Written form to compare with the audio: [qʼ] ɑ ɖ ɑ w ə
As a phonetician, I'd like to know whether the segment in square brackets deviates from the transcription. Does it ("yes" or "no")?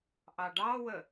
yes